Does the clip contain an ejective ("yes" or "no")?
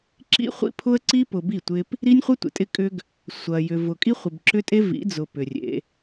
yes